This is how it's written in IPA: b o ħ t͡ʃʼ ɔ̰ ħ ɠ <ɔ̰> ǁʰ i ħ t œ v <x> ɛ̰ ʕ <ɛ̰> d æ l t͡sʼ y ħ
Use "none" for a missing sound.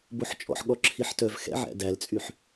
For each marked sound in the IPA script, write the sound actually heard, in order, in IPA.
ɔ, x, æ̰

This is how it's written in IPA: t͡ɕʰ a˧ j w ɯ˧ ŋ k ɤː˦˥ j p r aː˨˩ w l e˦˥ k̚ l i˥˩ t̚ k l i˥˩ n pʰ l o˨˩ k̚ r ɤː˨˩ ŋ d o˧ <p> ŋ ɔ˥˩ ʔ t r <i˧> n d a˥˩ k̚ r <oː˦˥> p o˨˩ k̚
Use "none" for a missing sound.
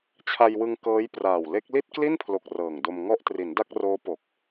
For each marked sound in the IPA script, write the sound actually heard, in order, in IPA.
m, i˩˦, oː˦˥

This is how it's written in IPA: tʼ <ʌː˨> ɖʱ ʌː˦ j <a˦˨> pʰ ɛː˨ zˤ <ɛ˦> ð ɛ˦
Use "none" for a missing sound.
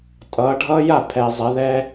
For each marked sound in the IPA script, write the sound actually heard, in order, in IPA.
ʌː˨˦, a˦˨, ɛ˨˦

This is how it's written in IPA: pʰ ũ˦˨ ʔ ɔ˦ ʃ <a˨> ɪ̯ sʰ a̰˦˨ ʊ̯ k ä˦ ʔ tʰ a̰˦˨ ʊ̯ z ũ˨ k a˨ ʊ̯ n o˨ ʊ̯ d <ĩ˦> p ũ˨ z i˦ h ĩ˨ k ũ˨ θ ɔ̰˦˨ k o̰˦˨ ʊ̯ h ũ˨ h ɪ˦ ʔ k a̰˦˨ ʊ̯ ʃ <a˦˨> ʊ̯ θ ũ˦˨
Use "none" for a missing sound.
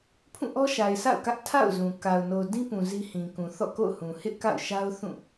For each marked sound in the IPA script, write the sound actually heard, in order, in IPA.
a˨, ĩ˦, a˦

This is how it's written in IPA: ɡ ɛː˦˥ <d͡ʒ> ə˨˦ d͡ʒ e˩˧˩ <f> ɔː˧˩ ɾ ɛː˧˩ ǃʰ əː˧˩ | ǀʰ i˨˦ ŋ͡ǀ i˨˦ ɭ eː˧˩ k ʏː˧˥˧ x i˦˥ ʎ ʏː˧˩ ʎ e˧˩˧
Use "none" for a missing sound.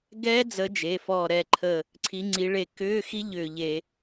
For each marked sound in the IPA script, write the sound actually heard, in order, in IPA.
d͡z, f

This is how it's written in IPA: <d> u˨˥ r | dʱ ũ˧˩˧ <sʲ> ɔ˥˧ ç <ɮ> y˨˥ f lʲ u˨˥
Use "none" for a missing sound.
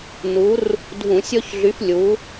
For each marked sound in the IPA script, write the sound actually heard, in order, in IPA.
n, sʲ, ɮ

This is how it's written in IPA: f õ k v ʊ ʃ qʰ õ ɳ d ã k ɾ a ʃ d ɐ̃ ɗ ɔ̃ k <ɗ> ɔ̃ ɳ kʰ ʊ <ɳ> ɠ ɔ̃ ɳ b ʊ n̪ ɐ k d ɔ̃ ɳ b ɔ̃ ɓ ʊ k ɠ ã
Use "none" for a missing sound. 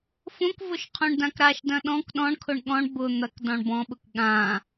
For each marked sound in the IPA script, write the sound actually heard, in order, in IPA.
ɗ, ɳ

